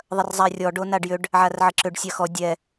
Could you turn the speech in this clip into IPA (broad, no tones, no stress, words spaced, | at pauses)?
ðˤɐrzˤarʲɔ ɖonaɖjʏɖ | ʕarʕəǁʏɖ sʲaxɔ dʲɛ